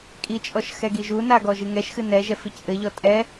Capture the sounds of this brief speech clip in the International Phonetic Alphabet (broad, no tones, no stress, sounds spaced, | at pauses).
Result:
kʼ i t͡ʃʼ ɔ ʃ x ɛ ɡ i ʒ u n a ɡ ɔ ʒ ɨ ŋ ɛ ʃ x ɨ n ɛ ʒ ɛ f i c ʔ ɘ ʎ ɔ tʼ ɛ